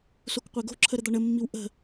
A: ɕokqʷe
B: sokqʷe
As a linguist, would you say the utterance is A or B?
B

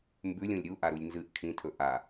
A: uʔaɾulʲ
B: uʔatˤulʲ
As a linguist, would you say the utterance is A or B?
A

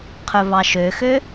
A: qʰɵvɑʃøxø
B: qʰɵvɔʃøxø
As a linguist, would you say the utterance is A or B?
A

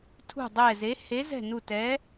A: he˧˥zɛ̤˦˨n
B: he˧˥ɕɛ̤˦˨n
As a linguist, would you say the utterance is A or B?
A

